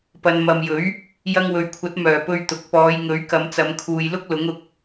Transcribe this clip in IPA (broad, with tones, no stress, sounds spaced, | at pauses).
p ɐ˨ n m ɐ˨ m j ɵ˨˥ ɥ | j ɐ˧ ŋ w ɵ˨ ɥ kʷʰ ɐ˨˥ t̚ m œː˨˩ p ɵ˧ ɥ t̪ ʊ˨ k̚ p ɔː˨˧ j ŋ ɵ˨˥ ɥ k ɐ˨˧ m t͡s ɐ˨˧ m kʰ uː˨ j l ʊ˥ k̚ l ʊ˨˥ ŋ ʊ˨˥ k̚